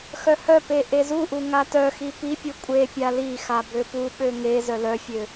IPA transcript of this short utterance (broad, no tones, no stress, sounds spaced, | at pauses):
x œ h œ p e ʔ e z u ʔ u ŋ a t œ x i p i pʲ u kʷʼ e pʲ a l i x a b ø p u ɓ ø ŋ e z œ l œ fʲ ø